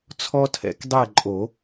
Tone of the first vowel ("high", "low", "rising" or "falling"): high